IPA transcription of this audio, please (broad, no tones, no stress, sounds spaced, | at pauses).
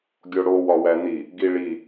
ɡʲ o ɽ o w ɒ w æ n̪ i | ɡ i ɭ i